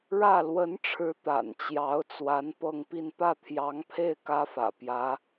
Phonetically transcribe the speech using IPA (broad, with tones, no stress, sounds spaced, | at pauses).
ɻ ä˥˩ l w ə˧˥ n ʈ͡ʂʰ ɻ̩˧˥ t̪ a̰˨˩ n t͡ɕ j ɑ˧˥ ʊ̯ t͡s w a˧˥ n p ɤ˥˧ ŋ p i˥˧ n p ä˥˩ t̪ʰ j ɑ˧˥ ŋ pʰ e˥˩ ɪ̯ k ä˥ f ä̰˨˩ p j ä˧˥